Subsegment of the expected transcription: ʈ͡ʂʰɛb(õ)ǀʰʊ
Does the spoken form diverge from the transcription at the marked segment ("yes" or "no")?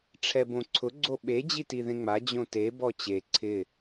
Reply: no